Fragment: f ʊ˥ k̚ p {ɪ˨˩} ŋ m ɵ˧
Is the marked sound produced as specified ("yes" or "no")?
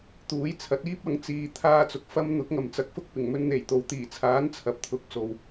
yes